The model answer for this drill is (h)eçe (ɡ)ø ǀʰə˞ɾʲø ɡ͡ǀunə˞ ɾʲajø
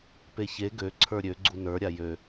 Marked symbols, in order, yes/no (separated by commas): no, yes